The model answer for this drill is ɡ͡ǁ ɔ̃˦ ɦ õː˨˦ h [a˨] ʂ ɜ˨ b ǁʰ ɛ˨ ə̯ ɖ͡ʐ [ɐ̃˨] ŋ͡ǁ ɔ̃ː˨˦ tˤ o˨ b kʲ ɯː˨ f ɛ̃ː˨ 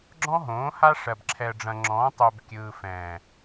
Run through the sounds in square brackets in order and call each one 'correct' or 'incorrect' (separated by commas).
incorrect, correct